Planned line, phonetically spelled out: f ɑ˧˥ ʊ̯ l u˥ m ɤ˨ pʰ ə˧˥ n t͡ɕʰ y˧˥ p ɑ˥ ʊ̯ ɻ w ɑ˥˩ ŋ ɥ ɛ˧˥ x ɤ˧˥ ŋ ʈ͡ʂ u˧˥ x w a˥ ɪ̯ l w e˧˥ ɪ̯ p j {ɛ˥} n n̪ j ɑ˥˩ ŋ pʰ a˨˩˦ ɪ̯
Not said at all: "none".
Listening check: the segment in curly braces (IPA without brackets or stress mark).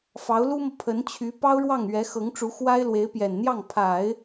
ɛ˨˩